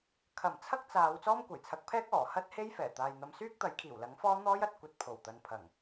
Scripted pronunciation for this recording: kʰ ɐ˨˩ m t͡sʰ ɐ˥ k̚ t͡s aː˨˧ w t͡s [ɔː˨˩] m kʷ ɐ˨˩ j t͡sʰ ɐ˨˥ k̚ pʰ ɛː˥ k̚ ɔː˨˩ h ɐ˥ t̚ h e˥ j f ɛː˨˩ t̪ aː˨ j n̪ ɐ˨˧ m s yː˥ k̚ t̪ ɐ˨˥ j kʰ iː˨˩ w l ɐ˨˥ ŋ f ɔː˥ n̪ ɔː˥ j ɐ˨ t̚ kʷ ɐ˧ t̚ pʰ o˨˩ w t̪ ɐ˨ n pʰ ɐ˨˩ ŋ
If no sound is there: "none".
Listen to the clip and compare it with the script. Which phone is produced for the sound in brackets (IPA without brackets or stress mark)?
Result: ɔː˥